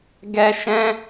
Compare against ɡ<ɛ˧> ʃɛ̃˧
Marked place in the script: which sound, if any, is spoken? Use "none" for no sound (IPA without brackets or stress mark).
ɛ˧